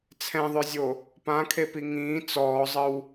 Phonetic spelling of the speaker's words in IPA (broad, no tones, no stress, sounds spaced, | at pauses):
t͡sʰ ɛ̃ ðˤ œ zʲ o | p ã kʰ e p i ŋ ĩː t͡s ɔː zˤ ə w